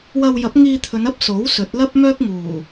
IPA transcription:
wɐ˧wjɐ˨˥p̚ ŋiː˧t̪ʰɵ˨˧n ɐ˥p̚so˨˥w sɵ˨˥t̚lɐ˥p̚mœː˥k̚ ŋuː˨˩

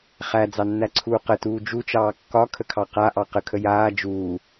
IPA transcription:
χæd͡zɑnːæǀʰuː qətuː d͡ʒut͡ʃɑː kːɒkʰəkʰɑ qaʔɑ qəkʰə jaː d͡ʒuː

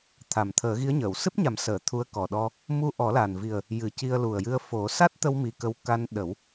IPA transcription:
t̪ʰa˨˩m t̪ʰəː˨˩˦ɣi˧˥ə̯ɲəː˨˩˨w sɨ˦˥p̚ɲa˨˩˦msəː˨˩˨ t̪ʰu˧˥ə̯kɔ˨˩ɗɔ˧ | mu˧ʔɔ˨˩˦la˨˩nvi˨˩ə̯ | jɨ˨˩˦ci˧ə̯ lu˨˩ə̯jɨ˧ə̯ fo˨˩˦ sa˦˥t̚t̪ə˧wmi˨˩ kə˧w ka˧nɗə˨˩˦w

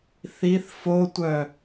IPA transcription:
θiθ fotʷœ

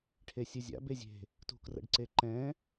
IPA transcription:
ʈʰesʲɨzʲa̰ bezʲe̤ | tṳkrə̰ɖ ǀeǃɛ̃

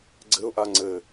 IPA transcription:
ɡ͡ǀɘʊ̯ʔa ŋ͡ǀɘ

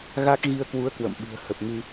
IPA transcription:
ɣa˦˥k̚ ɣi˧ə̯kwu˨˦ə̯ kwə̰˧˨mɓɨ̤˨˩ə̯hə˨˩p̚ŋɨ˧

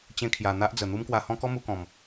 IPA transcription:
t͡ɕẽ˧kʰja˨˩ n̪a˦ʔd͡zə˨˩ n̪u˦mkwa˧hɔ̃˦ kɔ˦mu˧kɔ̃˨˩m

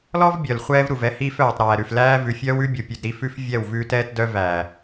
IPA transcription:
lɔ˦vbʲœ˨l χʷɛː˦vɾu˨vɛ˦hiː˦f œː˨tˤ ɾæː˨ɾʉ˨f læː˦ vʉ˨fʲœː˦wʉ˦bʲu˨ pʲʉ˨dɾi˦fʉ˦f vʲɛ˦˨wvʉː˦tɛː˦tdœ˦ væ˨

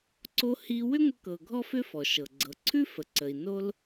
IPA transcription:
ǀo˧hi˧ wʏ˥ŋʷə˧kɤ˩ ɡʱɔ˥fʏ˥ fɔ˩ʃɤ˩ ɡ͡ǀɤ˩ǀʰʉ˥ fə˩ǀə˩i̯ no˧l

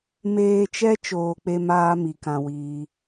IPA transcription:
meː˧t͡ʃɛ˦ t͡ʃoː˧k͡pe˦maː˦mi˨ kã˧wiː˧

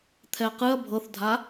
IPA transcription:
t̪ʰɛqɨɐ̯ bʱɤθdʱa

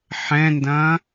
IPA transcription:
ħɛ̃ndɐ̃

